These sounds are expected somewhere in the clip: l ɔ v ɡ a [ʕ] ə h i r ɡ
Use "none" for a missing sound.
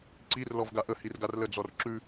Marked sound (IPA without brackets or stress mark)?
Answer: ʔ